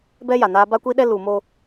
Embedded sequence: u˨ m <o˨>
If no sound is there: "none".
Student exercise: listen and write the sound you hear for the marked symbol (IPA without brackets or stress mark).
o˦